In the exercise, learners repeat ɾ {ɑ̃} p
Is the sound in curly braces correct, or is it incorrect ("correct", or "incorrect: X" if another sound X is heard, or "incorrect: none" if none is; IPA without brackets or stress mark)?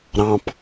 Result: correct